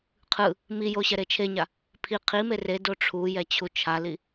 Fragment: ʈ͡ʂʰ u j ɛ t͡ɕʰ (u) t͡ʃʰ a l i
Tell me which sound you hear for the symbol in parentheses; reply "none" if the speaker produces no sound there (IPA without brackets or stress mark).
u